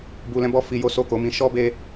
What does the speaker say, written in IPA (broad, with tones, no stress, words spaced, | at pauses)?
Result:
bu˧lɛ̃˦bɔ˦ fi˧ jo˦so˦˨ko˧mĩ˧ ʃɔ˦be˧